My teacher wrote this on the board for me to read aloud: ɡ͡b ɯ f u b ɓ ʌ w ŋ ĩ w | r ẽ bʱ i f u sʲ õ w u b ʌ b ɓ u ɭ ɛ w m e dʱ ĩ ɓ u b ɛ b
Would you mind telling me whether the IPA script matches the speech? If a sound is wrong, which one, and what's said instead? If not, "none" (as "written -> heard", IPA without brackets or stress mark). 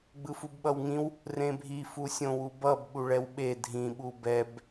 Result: m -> ɓ